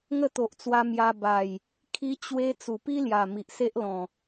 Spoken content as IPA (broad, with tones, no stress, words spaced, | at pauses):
ŋə˥˧t̪o˨ʔt͡swa˧mja˧ ba˨˩j | kʰi˧t͡ɕwe˧ t͡su˨˩pi˦lja˨˩ mi˨ʔse˦ʔlɔ̃˨˩